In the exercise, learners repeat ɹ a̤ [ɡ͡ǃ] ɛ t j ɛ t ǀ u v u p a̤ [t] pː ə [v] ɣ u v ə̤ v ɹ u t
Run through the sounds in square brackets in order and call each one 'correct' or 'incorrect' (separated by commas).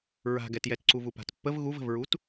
incorrect, correct, correct